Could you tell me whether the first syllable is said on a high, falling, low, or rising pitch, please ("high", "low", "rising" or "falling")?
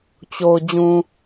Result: low